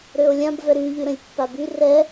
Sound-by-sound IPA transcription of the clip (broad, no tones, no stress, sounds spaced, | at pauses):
ɾ ø o̯ lʲ ã b v ɛ ɾ y ʎ y ɾ ə̃ lʲ pː a b y r ɛ